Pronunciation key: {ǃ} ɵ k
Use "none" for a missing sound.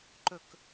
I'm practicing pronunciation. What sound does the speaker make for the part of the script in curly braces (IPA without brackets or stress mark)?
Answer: ǃ